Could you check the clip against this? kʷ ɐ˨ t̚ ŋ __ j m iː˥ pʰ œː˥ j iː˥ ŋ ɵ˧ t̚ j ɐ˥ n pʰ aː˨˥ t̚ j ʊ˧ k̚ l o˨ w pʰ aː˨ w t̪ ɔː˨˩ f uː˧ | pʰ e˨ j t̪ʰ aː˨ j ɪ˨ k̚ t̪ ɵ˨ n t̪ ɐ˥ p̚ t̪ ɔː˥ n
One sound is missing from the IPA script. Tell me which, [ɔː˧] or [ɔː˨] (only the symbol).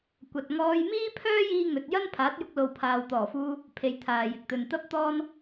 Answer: ɔː˧